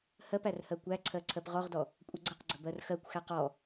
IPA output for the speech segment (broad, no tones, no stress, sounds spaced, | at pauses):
h ɜ p æ r h ɜ kʷ æ ǀʰ ɜ ǀʰ ɜ p ʁ ɔ ʁ d ɔ | kʷʼ ə ɡ͡ǀ ə q ɡ͡ǀ ə b ɜ r x ɜ kʷ x æ q ɔ